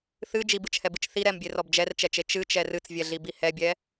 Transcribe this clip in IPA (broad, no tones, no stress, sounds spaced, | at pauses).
θ ɨ d͡ʒ i b ɨ t͡ʃ h ɛ b ɨ t͡ʃ θ i ɾ ɛ m bʲ e r ɔ b d͡ʒ ɛ r t͡ʃ ɛ t͡ʃ e t͡ʃ ɨ t͡ʃ ɛ r ɨ t͡s vʲ ɛ ɮ i b i h ɛ bʲ ɛ